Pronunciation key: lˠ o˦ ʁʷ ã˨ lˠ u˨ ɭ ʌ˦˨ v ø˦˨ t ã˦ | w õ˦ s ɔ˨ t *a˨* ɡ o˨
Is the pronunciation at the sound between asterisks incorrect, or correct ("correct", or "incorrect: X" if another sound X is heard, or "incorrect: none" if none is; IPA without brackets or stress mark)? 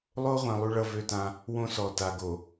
correct